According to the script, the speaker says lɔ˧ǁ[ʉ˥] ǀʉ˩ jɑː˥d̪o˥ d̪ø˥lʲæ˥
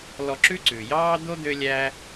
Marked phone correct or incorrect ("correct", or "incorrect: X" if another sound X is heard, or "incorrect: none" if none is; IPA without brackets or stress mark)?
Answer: correct